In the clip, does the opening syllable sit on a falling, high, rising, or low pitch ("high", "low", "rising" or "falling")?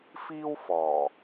high